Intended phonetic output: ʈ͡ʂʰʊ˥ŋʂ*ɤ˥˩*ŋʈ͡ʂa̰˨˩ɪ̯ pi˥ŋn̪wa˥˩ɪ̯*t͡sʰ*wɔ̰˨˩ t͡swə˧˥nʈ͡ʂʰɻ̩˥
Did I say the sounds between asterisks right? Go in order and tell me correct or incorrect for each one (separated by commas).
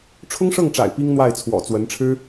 correct, correct